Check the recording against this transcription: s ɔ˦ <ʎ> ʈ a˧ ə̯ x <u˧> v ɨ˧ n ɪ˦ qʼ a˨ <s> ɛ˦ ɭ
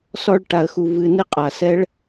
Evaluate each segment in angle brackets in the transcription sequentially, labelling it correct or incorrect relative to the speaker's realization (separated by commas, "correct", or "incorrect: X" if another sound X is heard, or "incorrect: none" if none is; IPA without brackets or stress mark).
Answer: incorrect: ɭ, correct, correct